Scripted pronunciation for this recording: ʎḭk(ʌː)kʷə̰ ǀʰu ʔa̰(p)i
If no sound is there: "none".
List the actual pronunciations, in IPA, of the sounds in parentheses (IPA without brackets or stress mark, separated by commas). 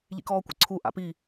ɔː, p